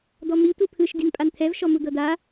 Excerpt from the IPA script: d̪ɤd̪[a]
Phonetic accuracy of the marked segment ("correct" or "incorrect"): correct